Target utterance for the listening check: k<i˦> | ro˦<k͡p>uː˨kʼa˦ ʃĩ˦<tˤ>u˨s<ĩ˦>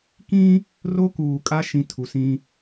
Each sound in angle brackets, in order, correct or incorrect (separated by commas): incorrect, incorrect, incorrect, correct